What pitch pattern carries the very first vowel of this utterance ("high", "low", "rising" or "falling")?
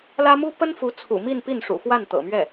high